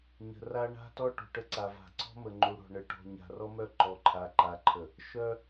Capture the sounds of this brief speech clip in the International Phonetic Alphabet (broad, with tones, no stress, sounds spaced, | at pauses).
ɲ ə̤˨ r a˦ ɳ a̤˦ t ɔ˦ ʈ ṳ˨ ʈ ə˦ ǀ a˨ v a̤˨ ǀ ɔ̤˦ m ə˨ ŋ͡ǃ u˨ ɽ ɔ̤˨ ɳ ə˨ ʈ ɔ̤˨ ɲ a̤˨ r ɔ˦ m œ˦˨ ǃ ɔ˨ ǃʰ a˨ ǃ a˨ ǃʰ ə˨ | ʃ œ˦